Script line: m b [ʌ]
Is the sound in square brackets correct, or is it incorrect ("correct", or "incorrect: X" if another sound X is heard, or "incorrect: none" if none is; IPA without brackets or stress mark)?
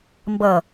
correct